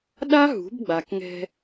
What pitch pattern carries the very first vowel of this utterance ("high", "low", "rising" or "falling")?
high